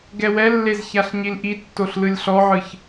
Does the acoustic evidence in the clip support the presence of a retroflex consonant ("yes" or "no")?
no